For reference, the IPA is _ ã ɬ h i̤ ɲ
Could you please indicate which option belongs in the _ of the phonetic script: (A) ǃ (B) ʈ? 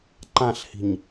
A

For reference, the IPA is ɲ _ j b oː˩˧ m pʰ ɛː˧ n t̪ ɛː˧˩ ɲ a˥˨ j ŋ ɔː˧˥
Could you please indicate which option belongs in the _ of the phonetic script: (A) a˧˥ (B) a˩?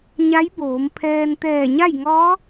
A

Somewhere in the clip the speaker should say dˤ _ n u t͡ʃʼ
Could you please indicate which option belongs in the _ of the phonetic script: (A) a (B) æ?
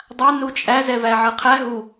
A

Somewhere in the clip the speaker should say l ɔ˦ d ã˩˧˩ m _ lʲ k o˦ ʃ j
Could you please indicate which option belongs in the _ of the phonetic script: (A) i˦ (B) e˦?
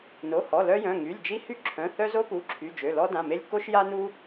B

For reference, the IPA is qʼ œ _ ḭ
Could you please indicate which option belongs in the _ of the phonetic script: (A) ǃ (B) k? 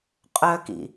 B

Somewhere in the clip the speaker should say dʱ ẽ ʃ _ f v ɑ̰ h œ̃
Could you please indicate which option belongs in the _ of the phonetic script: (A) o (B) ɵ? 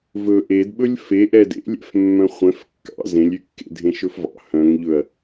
B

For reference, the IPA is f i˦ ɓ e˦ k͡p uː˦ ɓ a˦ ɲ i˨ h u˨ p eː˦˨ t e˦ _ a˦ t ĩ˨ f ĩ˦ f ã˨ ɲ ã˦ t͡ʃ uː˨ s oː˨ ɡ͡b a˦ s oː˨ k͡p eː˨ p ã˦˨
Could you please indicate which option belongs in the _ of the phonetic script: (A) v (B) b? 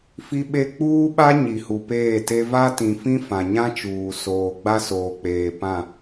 A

